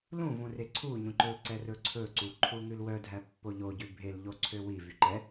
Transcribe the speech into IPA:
l ũ v ũ r e ǀʰ u ɲ ũ ǃ ɵ l ǀ ɛ r ɵ ǀʰ ɵ ǀ u ǃʰ u ŋ ʉ l w œ dʱ æ pː o ʎ o ɟ ʉ bʱ e l ʎ o ǀʰ ø w i v y ǃ ɛ

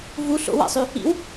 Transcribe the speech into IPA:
v u ɬ o̰ w a̰ sˤ y | ḭ w

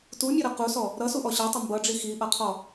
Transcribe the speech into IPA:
t u mʲ ʌ ɾ ʌ q u s ɔ | ɾ ʌ s u ʔ ɔ ɕ ʌ tˤ ɪ m b ʌ ɖ͡ʐ i x i ʔ ʌ qʰ ɔ

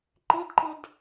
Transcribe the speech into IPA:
ǃ ɪ d ǃ ɪ d

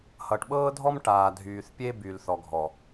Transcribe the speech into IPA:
h ʌ˨ ʈ ɓ ɤː˦ dʱ ɔ˦ m ʈ aː˨ dʱ yː˨ θ pʲ e˦ b y˨ l θ ɔ˨ ɡʱ ɔ˨

